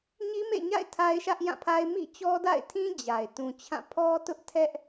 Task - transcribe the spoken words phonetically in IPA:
ɲ i˦ m ḛ˦˨ ɲ a̰˦˨ ɪ̯ tʰ a˦ ɪ̯ ʃ ä˦ ʔ j ã˦˨ pʰ a˦ ɪ̯ m ḭ˦˨ t͡ɕ ɔ˦ d a̰˦˨ ɪ̯ tʰ ĩ˦ d͡ʑ a˨ ɪ̯ t ũ˨ t͡ɕʰ ã˦˨ pʰ ɔ˦ t ʊ˦ ʔ tʰ ɛ˦ ʔ

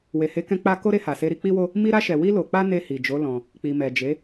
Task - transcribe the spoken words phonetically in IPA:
w e˨ h e˨˦ k ɛ̃˧ k͡p a˧ k o˦ ɾ e˧ h a˨ s e˧ ɾ i˧ k͡p i˦ w o˦ | m i˧ ɾ a˧ ʃ ɛ˨ w i˧ l o˨ k͡p a˧ n e˧ h i˨ d͡ʒ o˨˦ l ɔ̃˧ | k͡p i˨ m ɛ˨ d͡ʒ e˨˦

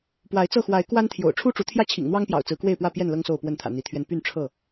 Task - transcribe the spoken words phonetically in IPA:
p w a˨˦ ɪ̯ t͡s ɤ˥˨ x w a˨˦ ɪ̯ k w a˦ n t̪ʰ j o̰˨˩ ʊ̯ ʈ͡ʂʰ u˦ ʈ͡ʂ u˨˦ t̪ʰ j ä˥˨ t͡ɕʰ ḭ˨˩ ŋ n̪ w ɑ˦ ŋ p j ɑ̰˨˩ ʊ̯ t͡s ɹ̩˨˦ k w e˥˨ ɪ̯ p w ä˥˨ p j ɛ˥˨ n l ɤ˦ ŋ s o˥˨ ʊ̯ p w ə˥˨ n t̪ʰ ä̰˨˩ n̪ i˨˦ t̪ʰ ɥ ɛ˧ n p y˥˨ n ʈ͡ʂʰ ɤ˥˨

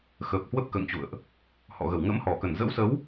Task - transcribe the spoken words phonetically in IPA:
x ə˨˩ p̚ h w ə˦˥ p̚ k ə̰ː˧˨ ŋ t͡ɕ ṵ˧˨ ə̯ ʔ | h ɔ̰˧˨ ɣ ə˧˩ w ŋ ə̰˧˥ m h ɔ˧˩ k ə˧˩ n z ə̰˧˥ w s ə˨˦ w

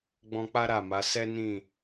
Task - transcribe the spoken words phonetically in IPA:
ɡ͡b ɔ̃˧ k͡p a˦ ɾ a˦˨ m a˨˦ s ɛ˦ n ĩ˦˨

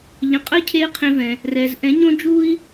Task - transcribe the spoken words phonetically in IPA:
ʎ ə̃˧ qʼ ə˧˥ i̯ cʰ eː˧ qʰ ẽ˧ v ɛ̃˧ | r ɛː˧ z ʔ ɛ̃˧˥ ɲ õ˥ d͡ʒ u˥ i̯

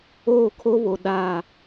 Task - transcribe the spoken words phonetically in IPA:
oː˦˨ kʰ o˦ β o˨ ɗ a˦˨

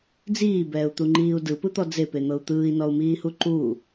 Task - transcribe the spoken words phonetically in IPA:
d͡z iː b ɛː u̯ t̪ u ŋ͡ǃ iː u̯ d ɯ p ɯ t̪ ɔ d͡z e p e n̪ ɤ u̯ t̪ ɯː i̯ n ɔ u̯ m iː h u ǃ u

